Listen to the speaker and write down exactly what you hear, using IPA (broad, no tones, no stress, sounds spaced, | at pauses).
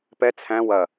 p ɛ t͡sʰ æ̃ w ɐ